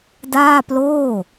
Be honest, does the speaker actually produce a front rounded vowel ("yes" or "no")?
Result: no